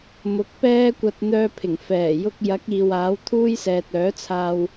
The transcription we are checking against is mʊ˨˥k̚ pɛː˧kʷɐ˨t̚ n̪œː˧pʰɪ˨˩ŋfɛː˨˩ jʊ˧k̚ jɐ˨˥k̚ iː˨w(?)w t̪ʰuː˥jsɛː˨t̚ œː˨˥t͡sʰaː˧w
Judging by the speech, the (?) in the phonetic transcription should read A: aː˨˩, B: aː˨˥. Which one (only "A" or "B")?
B